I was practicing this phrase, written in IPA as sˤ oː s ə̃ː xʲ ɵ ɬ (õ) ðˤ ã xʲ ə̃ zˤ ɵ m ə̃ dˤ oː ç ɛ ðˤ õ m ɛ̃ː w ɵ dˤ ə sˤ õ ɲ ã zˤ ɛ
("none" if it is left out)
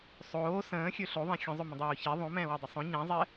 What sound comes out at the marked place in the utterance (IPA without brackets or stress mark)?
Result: o